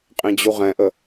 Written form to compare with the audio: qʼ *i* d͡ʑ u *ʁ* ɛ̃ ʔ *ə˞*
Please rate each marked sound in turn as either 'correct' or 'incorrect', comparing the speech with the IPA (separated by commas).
incorrect, correct, incorrect